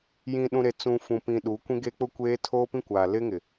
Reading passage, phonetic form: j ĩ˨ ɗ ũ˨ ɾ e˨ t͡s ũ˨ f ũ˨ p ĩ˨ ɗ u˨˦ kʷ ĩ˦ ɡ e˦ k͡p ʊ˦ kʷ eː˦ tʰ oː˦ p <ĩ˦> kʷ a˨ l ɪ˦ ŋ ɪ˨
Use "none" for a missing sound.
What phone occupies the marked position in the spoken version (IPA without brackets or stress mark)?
ĩ˦